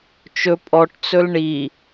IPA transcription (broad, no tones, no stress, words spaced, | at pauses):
t͡ʃɵ pʼɔʈt͡sɵl ɳi